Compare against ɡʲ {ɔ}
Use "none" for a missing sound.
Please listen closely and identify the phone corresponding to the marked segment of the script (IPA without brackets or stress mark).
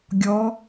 ɔ